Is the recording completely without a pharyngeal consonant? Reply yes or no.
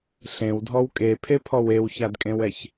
yes